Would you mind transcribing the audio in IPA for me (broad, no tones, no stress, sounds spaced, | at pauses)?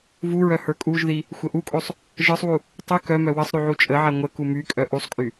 v u ɹ œ h ə˞ kʼ u ʒ ð i | xʷ ə ʔ u kʼ o sˤ | ʒ ə˞ sˤ w u | tˤ y k œ m œ w ə sˤ ɾ y ʕ u t͡ʃʼ ə ʕ a ŋʷ ə k u m y kʼ œ ʔ u sˤ kʼ y